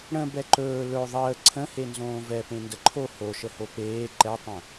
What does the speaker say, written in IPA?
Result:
ɽ ə̃ b ɛ ǃ ɵː l ɵ ðˤ əː ǀʰ ə̃ h e n z õː v ɛ p ẽ n d ə ǃʰ o h o ʃ ə h o p eː ǃ ɛ tˤ ə̃

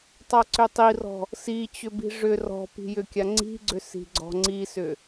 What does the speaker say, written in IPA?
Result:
tˤ a ǀ ʏ tˤ i r ɔ̤ | s i t͡ɕ ʏ b i̤ ʐ ʏ r ɔ̤ p i̤ j ʏ kʲ a ŋ͡ǀ i̤ ɡ͡ǀ ʏ s i̤ ɡ͡ǀ ɔ̤ ŋ͡ǀ i s ʏ

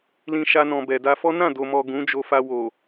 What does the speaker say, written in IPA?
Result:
l ĩ˧ ʃ a˧ n ɔ̃˨ b ɛ˨ d a˧ f ɔ˦ n ã˦˨ d o˨ m ɔ˨ ɡ ũ˨˦ d͡ʒ o˧ f a˧ w o˨

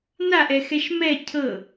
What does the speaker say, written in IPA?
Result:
n a ʔ ɛ x ɛ ʃ m ɛ cʰ ɤ

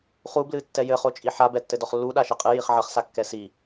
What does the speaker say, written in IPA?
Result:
χ u b l ɨ tː ɛ j ɘ χ o t͡ʃʼ i ħ a b ɛ tː ɘ d ɔ χ lː u ɗ a ʃ e qʼ ɨ j i χ ʕ ɐ χ s a kː ɛ s i

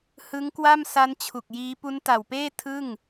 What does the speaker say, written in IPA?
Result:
h ɯ˦˥ ŋ k w a˥˩ m s a˦˥ n t͡ɕʰ u˨˩ k̚ j iː˦˥ p u˦˥ n t a˨˩ w p eː˥˩ tʰ ɯ˥˩ ŋ

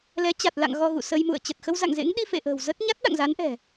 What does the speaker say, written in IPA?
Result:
l ɛ˨˦ t͡ɕ a˨˩ t̚ l a̰˧˨ ŋ ɣ ɔ˧ ɣ ṵ˧˨ s ə˧ j m ṵ˧˨ ə̯ t͡ɕ ə˨˩ t̚ x ə˧ w z a̰˧˨ ŋ z ḛ˧˥ ŋ ɗ i˧ f ḛ˧˨ ʔ ə̤ː˨˩ w z ə˦˥ t̚ ɲ a˦˥ t̚ ɗ a̰˧˨ ŋ z a˨˦ n ʔ ɛ̤˨˩

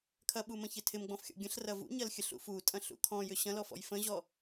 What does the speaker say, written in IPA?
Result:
kʰ ɐ ɓ u m ə̃ ç ɪ tʰ ɪ m ɡ͡b ɔ̃ f xʲ ɔ̰ ɡʲ ə̃ ɬ r ɐ v ṵ ɲ ɐ l xʲ ə ɬ ṵ f u tʼ ɐ̃ ɬ ṵ kʰ ɔ̃ j ʏ ɕ ɐ̃ l ɔ f ɔ̰ j f ə̃ ʑ ɔ

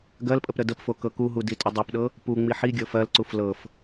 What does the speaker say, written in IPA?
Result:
ɡ ɜ l pʼ ə p ɾ ə d ə p f o k ɤ k u ɦ u d i tʼ ə dˤ i p ɗ ɤ | p u ŋ͡m i ħ i ɡʲ ɤ f ɜ l ǀ u f l ɤ f

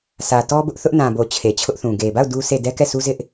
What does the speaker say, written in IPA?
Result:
sʰ ä˨ t ɔ˦ b ʊ˦ ʔ θ ʊ˦ ʔ n ã˨ b o˨ t͡ɕʰ e˨ t͡ɕʰ ʊ˦ ʔ θ ũ˨ ɡ e˨ b a˦˨ ʊ̯ d u˦ s e˦˨ d ɛ˦ k ɛ˦˨ s u˦ z ɪ˦ ʔ

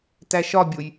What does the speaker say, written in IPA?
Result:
t æ ʃ ɒ bʲ o j

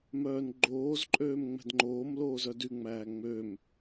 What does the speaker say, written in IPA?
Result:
m œː n ɡ͡ǃ oː z ǃʼ øː m ŋ͡m ɛ̤ d ŋ͡ǃ oː m l oː z œ d y ŋ͡m æː ŋ͡m ø m

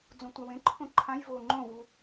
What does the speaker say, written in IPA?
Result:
d͡z õ tʷ a w ẽ ǃʰ õ ǃʰ ã j v o ŋ͡ǃ õ v u

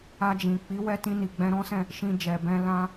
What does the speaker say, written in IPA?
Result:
a˧ d͡ʒ ĩ˨ k͡p i˨˦ w ɛ˧ t ĩ˧ n i˨ ɡ͡b ɛ̃˧ ɾ ɔ̃˦ s ɛ̃˦˨ | ʃ ĩ˧ d͡ʒ ɛ˨ b ɛ̃˧ l ã˧

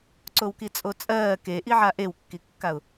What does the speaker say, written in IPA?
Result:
ǀ o w k i t͡sʼ o t͡sʼ ɜː k e ʔ i ʕ a ʔ e w kː i kː a ʊ̯

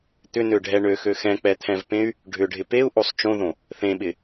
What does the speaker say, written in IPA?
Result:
t̪ ʏ n ø ɖʱ ɛ ɳ ø x ø x ɛ̃ k͡p ɛ t̪ʰ ɛ̃ v p ẽ y̯ | ɖʱ ʏ ɖʱ ɪ p e u̯ ʔ o sˤ t͡ʃ õ ð õ | θ ẽ ɓ ɪ

